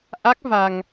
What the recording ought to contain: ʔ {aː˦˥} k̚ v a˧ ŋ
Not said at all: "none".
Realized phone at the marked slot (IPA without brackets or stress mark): a˦˥